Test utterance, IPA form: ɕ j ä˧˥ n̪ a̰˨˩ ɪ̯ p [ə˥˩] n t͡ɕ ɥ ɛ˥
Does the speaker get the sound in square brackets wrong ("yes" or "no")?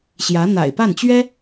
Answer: yes